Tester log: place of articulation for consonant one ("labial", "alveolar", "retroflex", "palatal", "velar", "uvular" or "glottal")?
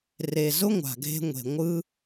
alveolar